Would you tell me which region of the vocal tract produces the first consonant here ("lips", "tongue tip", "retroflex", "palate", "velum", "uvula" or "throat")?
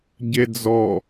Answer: palate